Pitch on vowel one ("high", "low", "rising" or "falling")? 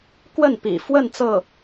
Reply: falling